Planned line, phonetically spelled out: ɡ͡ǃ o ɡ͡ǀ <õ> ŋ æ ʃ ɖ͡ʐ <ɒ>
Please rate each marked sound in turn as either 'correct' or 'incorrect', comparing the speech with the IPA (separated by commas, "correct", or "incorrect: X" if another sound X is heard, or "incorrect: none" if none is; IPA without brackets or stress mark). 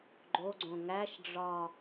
correct, correct